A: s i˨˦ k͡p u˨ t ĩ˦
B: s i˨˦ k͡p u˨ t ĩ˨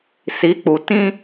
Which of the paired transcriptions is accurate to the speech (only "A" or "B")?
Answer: A